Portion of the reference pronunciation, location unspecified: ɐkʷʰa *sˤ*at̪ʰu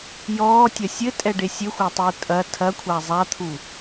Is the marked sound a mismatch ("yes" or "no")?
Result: yes